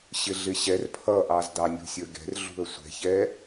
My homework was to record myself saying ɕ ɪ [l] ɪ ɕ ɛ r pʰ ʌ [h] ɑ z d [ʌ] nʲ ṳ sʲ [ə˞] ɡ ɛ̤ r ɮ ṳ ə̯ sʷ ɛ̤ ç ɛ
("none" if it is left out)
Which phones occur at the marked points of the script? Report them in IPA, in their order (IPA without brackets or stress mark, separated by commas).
ɮ, ʔ, ɑ, ə˞